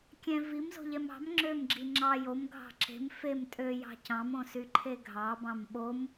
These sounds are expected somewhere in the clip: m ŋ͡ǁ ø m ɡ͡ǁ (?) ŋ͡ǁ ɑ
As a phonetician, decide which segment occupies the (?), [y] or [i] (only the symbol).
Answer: i